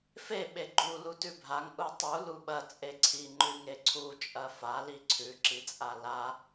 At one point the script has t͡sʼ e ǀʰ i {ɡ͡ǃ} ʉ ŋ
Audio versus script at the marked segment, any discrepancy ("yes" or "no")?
yes